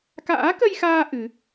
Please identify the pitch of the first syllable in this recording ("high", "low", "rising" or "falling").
rising